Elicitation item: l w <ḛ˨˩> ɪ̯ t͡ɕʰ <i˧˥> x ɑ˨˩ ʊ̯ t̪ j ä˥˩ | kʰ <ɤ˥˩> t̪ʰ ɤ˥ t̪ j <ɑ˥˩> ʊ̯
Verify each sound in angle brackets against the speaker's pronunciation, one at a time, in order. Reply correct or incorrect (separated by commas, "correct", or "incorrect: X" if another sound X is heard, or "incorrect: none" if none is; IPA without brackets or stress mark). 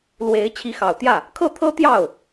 incorrect: e˧˥, correct, correct, correct